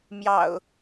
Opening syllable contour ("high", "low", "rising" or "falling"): low